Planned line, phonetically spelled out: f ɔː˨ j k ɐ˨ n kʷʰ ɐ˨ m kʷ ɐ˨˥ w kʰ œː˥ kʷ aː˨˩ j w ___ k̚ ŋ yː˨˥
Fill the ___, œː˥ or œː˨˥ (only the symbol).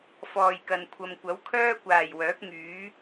œː˨˥